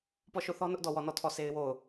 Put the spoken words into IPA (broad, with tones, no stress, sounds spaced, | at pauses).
p ɔ˦˨ ʃ o˦˨ θ ɔ˦ n ʊ˦ ʔ d ɔ˦˨ w ɔ˦˨ n ɔ˦˨ tʰ ɔ˦˨ sʰ e˦ ɪ̯ w o˦˨ ʊ̯